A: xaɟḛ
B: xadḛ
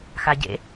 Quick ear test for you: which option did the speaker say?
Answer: A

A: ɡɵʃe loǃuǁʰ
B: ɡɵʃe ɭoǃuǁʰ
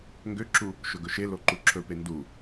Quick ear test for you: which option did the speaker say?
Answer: A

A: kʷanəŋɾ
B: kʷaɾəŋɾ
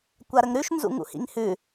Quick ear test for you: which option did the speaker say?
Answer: B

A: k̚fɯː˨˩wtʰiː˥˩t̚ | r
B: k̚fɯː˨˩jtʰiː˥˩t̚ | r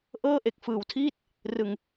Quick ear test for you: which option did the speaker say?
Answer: A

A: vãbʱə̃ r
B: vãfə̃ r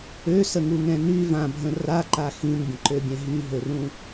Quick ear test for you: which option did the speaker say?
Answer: A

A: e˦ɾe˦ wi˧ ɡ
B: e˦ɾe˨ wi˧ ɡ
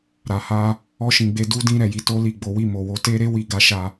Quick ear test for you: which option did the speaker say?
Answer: A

